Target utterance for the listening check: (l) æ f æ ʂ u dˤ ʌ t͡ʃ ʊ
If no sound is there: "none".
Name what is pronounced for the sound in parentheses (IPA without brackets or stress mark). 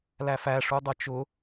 l